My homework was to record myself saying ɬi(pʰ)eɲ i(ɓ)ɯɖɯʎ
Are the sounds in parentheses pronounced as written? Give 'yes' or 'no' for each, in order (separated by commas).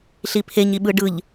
yes, yes